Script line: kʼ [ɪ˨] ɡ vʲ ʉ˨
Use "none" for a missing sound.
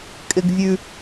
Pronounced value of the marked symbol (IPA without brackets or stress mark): ɪ˨